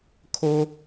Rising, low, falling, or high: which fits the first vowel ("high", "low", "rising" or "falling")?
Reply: high